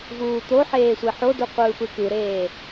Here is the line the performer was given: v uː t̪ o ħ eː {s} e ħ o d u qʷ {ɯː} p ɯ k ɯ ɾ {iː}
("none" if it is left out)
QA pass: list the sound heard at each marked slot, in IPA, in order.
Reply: sʷ, ɯː, eː

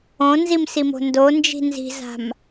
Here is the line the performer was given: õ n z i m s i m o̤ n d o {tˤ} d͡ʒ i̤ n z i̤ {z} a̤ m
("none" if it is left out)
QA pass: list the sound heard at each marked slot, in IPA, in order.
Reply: n, z

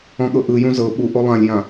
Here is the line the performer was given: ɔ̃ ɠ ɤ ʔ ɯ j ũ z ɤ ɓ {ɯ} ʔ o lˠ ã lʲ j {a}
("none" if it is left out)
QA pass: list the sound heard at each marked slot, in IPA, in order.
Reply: u, ã

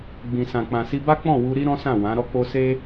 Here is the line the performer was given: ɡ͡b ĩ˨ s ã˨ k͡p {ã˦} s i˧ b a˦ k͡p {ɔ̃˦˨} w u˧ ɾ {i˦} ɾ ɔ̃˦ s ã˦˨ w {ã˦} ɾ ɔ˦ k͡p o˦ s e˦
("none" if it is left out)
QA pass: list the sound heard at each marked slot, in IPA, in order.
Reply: ã˨, ɔ̃˦˨, i˦, ã˨˦

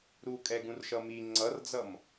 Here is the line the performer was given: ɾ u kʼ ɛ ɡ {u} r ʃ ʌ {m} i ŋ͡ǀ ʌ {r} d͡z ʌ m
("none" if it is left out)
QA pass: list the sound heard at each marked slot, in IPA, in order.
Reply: ũ, m, r

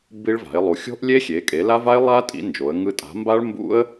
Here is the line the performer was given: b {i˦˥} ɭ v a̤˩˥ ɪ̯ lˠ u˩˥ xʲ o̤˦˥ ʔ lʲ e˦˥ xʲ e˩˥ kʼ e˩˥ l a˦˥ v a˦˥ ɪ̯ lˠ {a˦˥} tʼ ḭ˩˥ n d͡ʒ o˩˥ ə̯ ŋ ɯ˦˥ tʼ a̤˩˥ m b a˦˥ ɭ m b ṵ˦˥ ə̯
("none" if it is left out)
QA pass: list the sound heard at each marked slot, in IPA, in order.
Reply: i˦˥, a˦˥

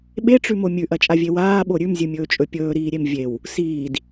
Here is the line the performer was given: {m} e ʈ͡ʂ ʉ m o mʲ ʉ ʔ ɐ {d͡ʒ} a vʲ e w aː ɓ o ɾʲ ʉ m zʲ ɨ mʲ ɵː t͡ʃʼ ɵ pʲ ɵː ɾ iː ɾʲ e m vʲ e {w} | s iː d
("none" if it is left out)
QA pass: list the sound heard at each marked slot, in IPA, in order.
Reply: ɓ, t͡ʃʼ, w

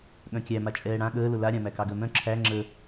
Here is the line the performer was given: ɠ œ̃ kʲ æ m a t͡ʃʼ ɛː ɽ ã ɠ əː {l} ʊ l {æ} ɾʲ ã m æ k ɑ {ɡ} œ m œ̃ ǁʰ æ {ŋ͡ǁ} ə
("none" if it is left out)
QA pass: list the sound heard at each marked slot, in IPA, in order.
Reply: l, a, ɡ, ŋ͡ǁ

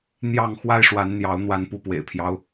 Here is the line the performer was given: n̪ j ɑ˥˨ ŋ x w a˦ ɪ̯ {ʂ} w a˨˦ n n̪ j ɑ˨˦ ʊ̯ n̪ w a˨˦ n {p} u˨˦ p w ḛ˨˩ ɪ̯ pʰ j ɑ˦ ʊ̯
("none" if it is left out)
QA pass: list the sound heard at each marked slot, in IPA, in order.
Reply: ʂ, p

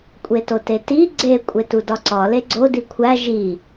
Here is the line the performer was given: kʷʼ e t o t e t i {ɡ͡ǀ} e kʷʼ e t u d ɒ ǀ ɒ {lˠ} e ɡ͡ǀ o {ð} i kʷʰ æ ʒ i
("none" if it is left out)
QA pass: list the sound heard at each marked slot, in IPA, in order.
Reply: ɡ͡ǀ, l, d

